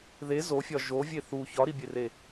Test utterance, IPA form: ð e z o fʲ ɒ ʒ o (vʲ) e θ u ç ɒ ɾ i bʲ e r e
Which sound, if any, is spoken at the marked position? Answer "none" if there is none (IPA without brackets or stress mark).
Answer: vʲ